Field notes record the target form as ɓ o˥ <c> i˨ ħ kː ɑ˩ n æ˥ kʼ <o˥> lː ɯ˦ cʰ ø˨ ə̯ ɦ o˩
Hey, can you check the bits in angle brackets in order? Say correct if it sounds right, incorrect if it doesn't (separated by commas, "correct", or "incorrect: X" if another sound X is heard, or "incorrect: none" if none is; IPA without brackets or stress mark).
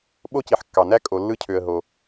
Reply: correct, incorrect: o˨